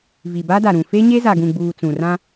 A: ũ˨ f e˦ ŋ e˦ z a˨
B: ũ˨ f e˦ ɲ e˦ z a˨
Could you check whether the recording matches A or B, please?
B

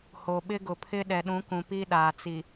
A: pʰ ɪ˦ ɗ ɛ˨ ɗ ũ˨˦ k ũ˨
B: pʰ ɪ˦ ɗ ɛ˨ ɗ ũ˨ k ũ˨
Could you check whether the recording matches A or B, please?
A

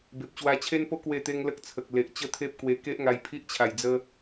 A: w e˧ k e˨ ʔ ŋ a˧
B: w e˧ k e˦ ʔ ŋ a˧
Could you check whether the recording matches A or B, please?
B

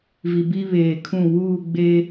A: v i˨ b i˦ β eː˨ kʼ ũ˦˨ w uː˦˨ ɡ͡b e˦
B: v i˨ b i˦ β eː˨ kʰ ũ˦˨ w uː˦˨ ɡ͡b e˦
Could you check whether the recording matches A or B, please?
B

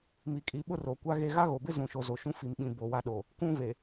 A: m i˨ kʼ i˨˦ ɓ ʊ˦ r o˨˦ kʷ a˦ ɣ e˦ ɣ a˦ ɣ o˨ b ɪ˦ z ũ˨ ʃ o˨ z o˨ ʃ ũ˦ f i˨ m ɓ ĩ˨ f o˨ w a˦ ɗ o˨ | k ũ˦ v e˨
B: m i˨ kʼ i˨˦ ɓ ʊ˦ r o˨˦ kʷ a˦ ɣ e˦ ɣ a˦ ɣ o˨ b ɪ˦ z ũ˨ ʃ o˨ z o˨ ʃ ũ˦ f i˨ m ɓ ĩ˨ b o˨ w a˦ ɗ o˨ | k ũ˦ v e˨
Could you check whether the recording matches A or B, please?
B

